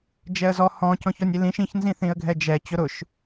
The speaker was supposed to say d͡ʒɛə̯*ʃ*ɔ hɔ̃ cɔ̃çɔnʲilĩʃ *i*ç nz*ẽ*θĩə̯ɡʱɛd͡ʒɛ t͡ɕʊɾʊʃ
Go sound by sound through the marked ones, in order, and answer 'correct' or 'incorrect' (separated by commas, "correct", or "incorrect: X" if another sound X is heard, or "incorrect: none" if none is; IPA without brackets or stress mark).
incorrect: z, incorrect: ĩ, incorrect: ĩ